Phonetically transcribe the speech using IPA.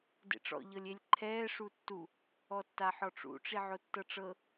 d ḛ ʈ͡ʂ ɔ̰ ʎ ɤ lʲ e lʲ ǃʰ ɛː ʂ u tː u | ɔ tː a ħ ɔ ʈ͡ʂ ṵ ʈ͡ʂ i ʕ o tː ɤ ʈ͡ʂ ɤ

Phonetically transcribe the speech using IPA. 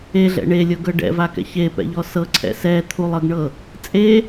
e ɮ ɛ̰ ɳ e lʲ ɤ ɡ ɤ ɖ ɛ̰ v a k ɛ̰ ç e p ɛ̰ ʎ ɔ s ɤ ǀʰ ɛ̰ s ɛ t̪ʰ u lˠ ɤ ɡ ɳ ɤ | t͡sʼ e

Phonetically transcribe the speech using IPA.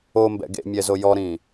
o m b ɛ̰ ɡ ḛ mʲ ɛ z o j ɔ ɾ ĩ

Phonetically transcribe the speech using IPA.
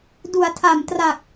d u˩˦ a̯ tʰ a˨˩ m t r a˨˩ k̚

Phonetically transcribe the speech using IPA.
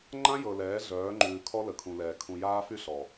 ŋ͡ǃ ã˦ j ɤ˨ l ɛː˨˦ ɮ œː˨˦ ŋ͡ǃ ʉː˨ kʰ ɔ˦ l ə˨ kʰ ũ˨ l ɛː˨ kʰ ũ˨ j aː˦ f y˦ ɬ ɔ˨

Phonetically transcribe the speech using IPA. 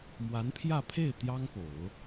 m w a˧˥ n pʰ j ä˥˧ pʰ e˥˩ ɪ̯ t̪ j ɑ˥ ŋ p o˨˩˦ ʊ̯

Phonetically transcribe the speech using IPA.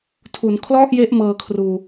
tʰ u˩˦ n kʰ l ɔ˥˩ ʔ j e˦˥ ʔ m ɤː˧ kʰ r uː˧

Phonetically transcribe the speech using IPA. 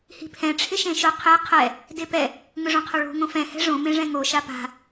h i̤ pʰ ɛ̃ ʈ͡ʂʰ ɪ ʃ ẽ ʃ ʊ qʰ e qʰ ɛ | d e p ɛ | ŋ ʊ ʐ õ qʰ o ɭ o̤ ŋ õ f ɛ̃ h ɛ̤ ʐ õ m ẽ ʐ ɛ̃ ŋ o ʃ a p a̤

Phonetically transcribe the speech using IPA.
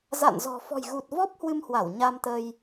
z a̰˧˨ n z ɔ̤˨˩ f ɔ̤˨˩ j ɣ u˨˩ t̚ v ɔ˦˥ p̚ h w ɨ˧ m h w a˧˩ w ɲ a˧ m t̪ ə˧ j

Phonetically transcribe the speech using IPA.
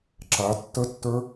ǁ a tː ə tː ə˞

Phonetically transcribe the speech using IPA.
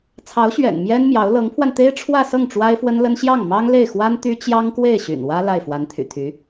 t͡sʰ ɑ˧˥ ʊ̯ ɕ ɥ ɛ̰˨˩ n m j ɛ˥ n m j ɑ˧˥ ʊ̯ l ɤ˧˥ ŋ pʰ w a˧ n t̪ e˥ ɪ̯ ʈ͡ʂʰ w ä˥˧ s ɤ˥˩ ŋ ʈ͡ʂ w a˥ ɪ̯ f w ə˥ n l ə˥ n ɕ j ɑ˥˩ ŋ m ɑ˥ ŋ l e˥˩ ɪ̯ x w a˥ n t̪ y˥ t͡ɕ j ɑ˥ ŋ k w e˥˩ ɪ̯ ɕ y̰˨˩ n w ä˥ l a˥˩ ɪ̯ f w a˧˥ n t̪ʰ y̰˨˩ t̪ʰ y˧˥

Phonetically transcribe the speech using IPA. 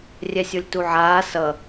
rʲ ɛ sʲ o lʲ t u ʕ aː s ʌ

